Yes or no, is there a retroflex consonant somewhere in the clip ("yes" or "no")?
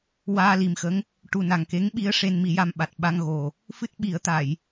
yes